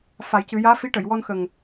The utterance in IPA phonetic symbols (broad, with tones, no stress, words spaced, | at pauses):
fa˨˩˦jcɨ˨˩˦ jaː˧˥fi˧˥ ʈə˨˩˨jwɔ˧nxə˨˩ŋ